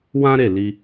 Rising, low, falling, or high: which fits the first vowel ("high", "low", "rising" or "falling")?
high